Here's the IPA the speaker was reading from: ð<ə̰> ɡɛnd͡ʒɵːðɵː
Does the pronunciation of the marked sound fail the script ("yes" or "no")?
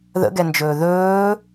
no